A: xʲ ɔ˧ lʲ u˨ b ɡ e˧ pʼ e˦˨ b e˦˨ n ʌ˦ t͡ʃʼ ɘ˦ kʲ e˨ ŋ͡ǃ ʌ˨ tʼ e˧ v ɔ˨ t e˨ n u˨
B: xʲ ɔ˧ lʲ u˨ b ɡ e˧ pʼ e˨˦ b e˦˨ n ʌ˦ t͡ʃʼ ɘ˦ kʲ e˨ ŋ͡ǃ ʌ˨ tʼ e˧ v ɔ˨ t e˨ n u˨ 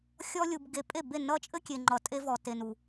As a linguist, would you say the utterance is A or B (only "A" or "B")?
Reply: A